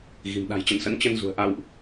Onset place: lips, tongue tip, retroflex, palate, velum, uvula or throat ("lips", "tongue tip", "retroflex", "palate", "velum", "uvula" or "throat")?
velum